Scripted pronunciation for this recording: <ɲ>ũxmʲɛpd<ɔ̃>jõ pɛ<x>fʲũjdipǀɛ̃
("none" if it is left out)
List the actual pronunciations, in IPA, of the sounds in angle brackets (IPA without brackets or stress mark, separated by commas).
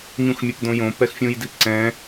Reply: ɲ, õ, x